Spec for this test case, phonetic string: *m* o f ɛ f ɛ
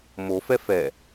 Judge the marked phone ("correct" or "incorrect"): correct